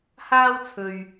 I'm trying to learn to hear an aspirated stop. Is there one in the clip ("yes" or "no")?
yes